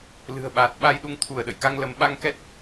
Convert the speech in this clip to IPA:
l ɨ̤˨˩ ə̯ ɓ aː˨˩ t̚ ɓ a˧ j ɗ u˨˦ ŋ t̪ʰ u˧˩ ə̯ ɗ ə̰˧˨ j k a˧ ŋ l ə˨˦ m ɓ a˧ ŋ k ɛ˦˥ t̚

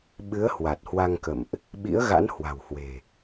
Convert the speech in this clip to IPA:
ɓ ɨ˨˦ ə̯ h w a˨˩ t̚ h w a˧ ŋ k ə̰˧˨ m ʔ | ɓ ḭ˧˥ ə̯ ɣ a̰˧˥ n h w a̤˨˩ w h w e̤˨˩

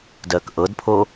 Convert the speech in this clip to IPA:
d ɜ k ʔ ɤ d pʰ o

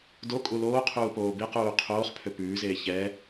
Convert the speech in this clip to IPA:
d o kʼ u l oː qʰ uː p oː b e q uː qʰ oː χ pʰ ø p ʉː z eː ç ɛ

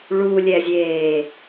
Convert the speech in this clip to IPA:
ɭ u lʲ ɛ zʲ eː

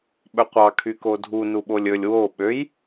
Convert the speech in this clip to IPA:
ɓ œ qʷ ɑ kʰ y k o dʱ u n u ɓ o lʲ ɵ lʲ w o ɓ ø j

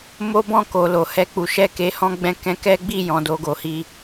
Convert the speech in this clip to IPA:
m o˦ b ɔ̃˦˨ k o˨ l o˨ h ɛ˧ k͡p u˨ ʃ ɛ˧ k e˧ h ɔ̃˦ ɡ͡b ɛ̃˧ k ɛ̃˧ k ɛ˦ ɡ͡b i˦˨ j ɔ̃˨ d o˨ ɡ o˨ h i˨

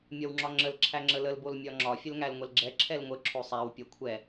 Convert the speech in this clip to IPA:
mʲ ɒ w ŋ͡ǁ ɒ ŋ͡ǁ ə l ǁʰ æ ŋ͡ǁ ə l ə l b o l mʲ ɒ ŋ͡ǁ ɒ fʲ ə l ŋ æ l ŋʷ ɛ l ɡ͡ǁ ɛ ǁʰ ɛ l ŋʷ ə ǁʰ o sˤ æ w pʲ ɒ kʷʰ ɛ

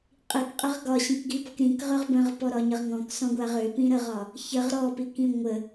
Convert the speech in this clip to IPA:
qʼ i k qʼ ə ʁ ɡ ɒ ɕ ĩ k ɡ i b ɔ k ɾ ĩ k ʁ œ ʁ b ə̃ ʁ p ɔ ɾ ɒ ɲ ə ʁ ŋ ɔ̃ k s ɔ̃ ɡʷ a ʁ ø p ĩ ɾ ə ʁ ɒ | ç ə ʁ ɾ ɔ p i k ĩ ŋʷ ə

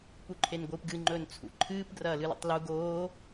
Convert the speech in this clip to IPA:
p u ǃʰ e n ɡʷ ɨː p ɡ ɨ ŋ͡ǃ ɵː n t͡sʰ ṵ ǃʰ ɨː p ɡ r ɐː l ɨ l o̰ tˤ l u ɡ oː

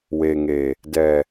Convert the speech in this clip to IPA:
w e˨ ŋ e˨ | d ɛ˨

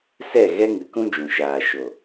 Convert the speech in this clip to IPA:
s ɛ˦˨ ɣ ɛ˦ ŋ ɨ˨˦ k ũ˦ d͡ʒ ũ˨ ʃ aː˨ ʃ o˨

